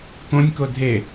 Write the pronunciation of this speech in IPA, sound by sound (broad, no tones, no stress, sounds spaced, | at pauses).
k õ nʲ k o dʱ e